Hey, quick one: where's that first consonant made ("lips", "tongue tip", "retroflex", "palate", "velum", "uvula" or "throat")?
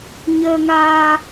palate